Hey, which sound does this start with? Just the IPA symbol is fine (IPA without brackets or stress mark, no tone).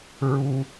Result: ɹ